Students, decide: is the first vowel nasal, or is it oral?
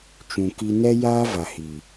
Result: nasal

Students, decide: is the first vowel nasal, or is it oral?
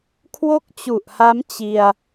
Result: oral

